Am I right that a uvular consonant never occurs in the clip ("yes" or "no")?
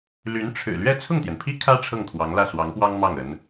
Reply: yes